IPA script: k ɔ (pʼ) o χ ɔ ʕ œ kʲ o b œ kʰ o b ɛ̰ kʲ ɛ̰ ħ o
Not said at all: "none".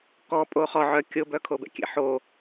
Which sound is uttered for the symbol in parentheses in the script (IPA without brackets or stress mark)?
pʼ